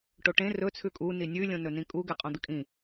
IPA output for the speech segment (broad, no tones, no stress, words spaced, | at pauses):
ʈoʈẽ rɵ t͡sʰʉkʼu ninʲʉ lʲõnɵnĩkʼu ɡeqʼõd̪ɨkʼĩ